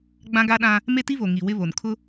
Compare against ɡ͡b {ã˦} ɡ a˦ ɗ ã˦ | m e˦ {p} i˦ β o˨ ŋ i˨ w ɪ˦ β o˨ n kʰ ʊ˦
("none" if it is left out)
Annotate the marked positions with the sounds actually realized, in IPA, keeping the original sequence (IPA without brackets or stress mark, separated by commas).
ã˦, t